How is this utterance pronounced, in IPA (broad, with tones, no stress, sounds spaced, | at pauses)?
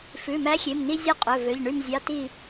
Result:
f ʉ˩˧˩ m æ˨˥ xʲ e˩˧˩ m n i˧ zʲ ø˧ qʼ ɵ˩˧˩ v ø˩˧˩ ʎ ɳ y˧˩ m zʲ ɑ˩˧˩ t i˧˩